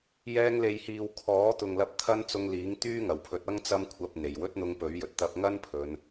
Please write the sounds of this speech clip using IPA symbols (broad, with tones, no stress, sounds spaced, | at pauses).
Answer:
j ɛː˧ ŋ l e˨ j h iː˨ w kʰ ɔː˨˥ t̪ ʊ˨ ŋ l ɐ˧ p̚ t̪ʰ ɐ˥ n t͡s ʊ˧ ŋ l iː˨˥ ŋ t̪ yː˥ ŋ ɐ˨˩ w pʰ ɵ˨˥ t̚ ɐ˥ ŋ t͡s ɐ˥ m kʷʰ ɐ˧ p̚ n̪ e˨˩ j w ɵ˥ t̚ n̪ ʊ˧ ŋ p ɵ˨˥ ɥ j ɵ˨ t̚ t̪ ɐ˧ p̚ ŋ ɐ˥ n pʰ ɵ˨˧ n